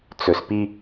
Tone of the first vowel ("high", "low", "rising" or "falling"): low